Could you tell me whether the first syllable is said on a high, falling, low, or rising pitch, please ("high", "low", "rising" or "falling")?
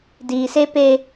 low